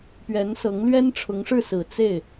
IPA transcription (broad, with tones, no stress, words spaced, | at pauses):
pɥɛ˧˥nsɤ˧˥ŋ lɥɛ˥nʈ͡ʂʰʊ˧˥ŋʂɻ̩˥˩ sɹ̩˨˩ t͡se˥˩ɪ̯